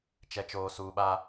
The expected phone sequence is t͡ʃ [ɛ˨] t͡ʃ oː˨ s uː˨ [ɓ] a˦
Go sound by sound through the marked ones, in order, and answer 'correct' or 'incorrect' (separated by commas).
correct, correct